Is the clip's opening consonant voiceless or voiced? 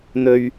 voiced